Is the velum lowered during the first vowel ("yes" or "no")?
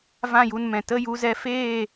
yes